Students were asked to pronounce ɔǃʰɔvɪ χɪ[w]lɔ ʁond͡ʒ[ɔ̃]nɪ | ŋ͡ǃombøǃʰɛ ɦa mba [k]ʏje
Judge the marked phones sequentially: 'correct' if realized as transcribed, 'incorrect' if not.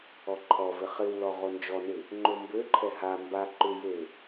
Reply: correct, incorrect: ɔ, incorrect: ǃ

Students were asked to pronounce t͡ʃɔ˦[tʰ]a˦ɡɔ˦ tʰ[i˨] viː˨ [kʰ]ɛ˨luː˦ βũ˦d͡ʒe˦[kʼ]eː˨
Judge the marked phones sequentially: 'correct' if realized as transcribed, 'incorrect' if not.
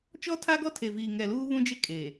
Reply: correct, incorrect: e˨, incorrect: ŋ, correct

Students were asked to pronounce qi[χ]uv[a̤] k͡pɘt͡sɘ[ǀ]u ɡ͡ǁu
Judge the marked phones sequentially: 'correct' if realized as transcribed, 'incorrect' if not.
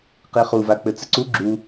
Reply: correct, incorrect: a, correct

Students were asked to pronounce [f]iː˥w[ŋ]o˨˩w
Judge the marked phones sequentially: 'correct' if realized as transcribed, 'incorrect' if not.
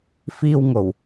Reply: correct, correct

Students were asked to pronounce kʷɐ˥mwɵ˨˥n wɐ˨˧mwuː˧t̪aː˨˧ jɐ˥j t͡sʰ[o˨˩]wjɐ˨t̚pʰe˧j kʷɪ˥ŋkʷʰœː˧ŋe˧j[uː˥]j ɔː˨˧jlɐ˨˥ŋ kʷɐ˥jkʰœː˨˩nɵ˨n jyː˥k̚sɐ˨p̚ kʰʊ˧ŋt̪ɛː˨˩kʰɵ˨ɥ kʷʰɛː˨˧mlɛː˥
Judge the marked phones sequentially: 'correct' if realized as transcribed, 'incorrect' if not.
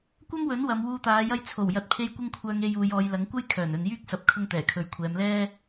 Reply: correct, incorrect: uː˨˧

